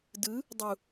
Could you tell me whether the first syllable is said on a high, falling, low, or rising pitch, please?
rising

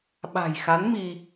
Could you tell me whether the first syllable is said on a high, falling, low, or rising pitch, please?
low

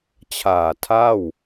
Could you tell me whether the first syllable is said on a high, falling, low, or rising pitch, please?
low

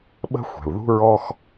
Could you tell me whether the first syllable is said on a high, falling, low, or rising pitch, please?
high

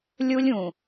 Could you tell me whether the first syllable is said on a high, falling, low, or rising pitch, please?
high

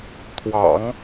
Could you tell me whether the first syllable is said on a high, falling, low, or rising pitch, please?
low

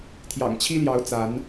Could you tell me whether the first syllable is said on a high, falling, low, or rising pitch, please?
low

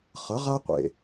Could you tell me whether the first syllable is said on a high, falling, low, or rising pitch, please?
rising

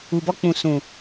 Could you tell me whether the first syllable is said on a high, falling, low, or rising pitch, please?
low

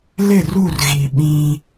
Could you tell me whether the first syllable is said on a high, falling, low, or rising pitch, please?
falling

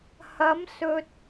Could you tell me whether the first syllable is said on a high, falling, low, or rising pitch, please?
rising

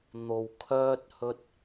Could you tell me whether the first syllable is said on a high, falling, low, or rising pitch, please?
low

